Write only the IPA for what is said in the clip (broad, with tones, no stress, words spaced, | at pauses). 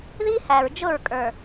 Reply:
ði˦hæ˨ɹ d͡ʒʊ˦˨ɹkʼə˞˨